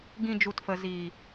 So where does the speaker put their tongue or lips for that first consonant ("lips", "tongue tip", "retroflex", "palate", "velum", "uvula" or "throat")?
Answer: velum